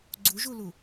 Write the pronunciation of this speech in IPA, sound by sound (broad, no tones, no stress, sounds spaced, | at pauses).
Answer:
ɡ͡ǀ u ʒ u l u